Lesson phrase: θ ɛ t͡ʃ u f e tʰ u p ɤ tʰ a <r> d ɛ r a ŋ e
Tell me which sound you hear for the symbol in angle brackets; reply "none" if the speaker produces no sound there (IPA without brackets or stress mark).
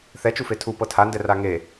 n